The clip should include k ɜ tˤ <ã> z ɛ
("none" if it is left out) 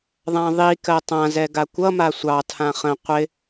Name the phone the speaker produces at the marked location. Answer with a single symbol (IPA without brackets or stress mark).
ã